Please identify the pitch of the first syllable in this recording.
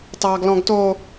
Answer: low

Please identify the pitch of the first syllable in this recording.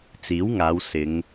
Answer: rising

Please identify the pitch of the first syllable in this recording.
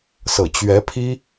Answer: low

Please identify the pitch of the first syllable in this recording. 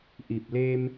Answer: low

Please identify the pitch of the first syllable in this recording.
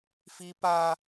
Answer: high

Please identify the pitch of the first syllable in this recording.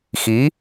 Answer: rising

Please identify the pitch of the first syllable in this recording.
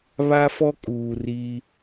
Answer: high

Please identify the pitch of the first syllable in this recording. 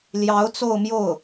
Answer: rising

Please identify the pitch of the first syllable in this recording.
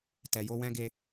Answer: low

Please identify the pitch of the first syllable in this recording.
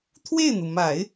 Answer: falling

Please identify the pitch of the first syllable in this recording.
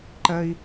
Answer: high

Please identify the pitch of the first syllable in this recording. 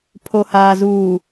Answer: low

